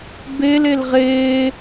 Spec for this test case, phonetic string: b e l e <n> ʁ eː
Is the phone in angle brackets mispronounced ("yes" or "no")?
yes